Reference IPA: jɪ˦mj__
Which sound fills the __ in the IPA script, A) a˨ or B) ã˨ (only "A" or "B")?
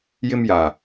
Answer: A